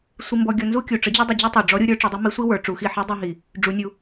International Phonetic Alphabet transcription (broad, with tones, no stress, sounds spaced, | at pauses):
sʷ i˧ m b ɔ˧ ɡʲ ɔ˧ n z u˥ kʲ u˩ ʈ͡ʂ ə˧˥ d͡ʑ u˥ dˤ ə˧ d͡ʑ i˥ tˤ u˩ ɖ͡ʐ ɔ˧˥ ɾʲ u˧ ɾʲ ə˞˥ ʈ͡ʂ i˩˧ dˤ u˧˥ m i˧˥ sʷ i˥ w ə˞˩˧ ʈ͡ʂ u˩˧ x i˧ ħ i˧˥ dˤ i˧ ɦ i˩ | ɖ͡ʐ u˩˧ nʲ u˩